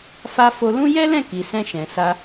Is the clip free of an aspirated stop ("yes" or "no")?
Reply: yes